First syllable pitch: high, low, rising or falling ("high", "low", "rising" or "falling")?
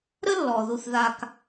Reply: high